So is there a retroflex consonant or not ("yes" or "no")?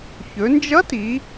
no